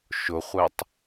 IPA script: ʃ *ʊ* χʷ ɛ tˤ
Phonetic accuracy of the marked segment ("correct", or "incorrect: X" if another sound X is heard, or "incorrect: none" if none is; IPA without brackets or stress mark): correct